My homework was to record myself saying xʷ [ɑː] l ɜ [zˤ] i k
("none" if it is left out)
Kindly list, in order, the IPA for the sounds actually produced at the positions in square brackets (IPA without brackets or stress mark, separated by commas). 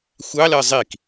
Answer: ɑ, zˤ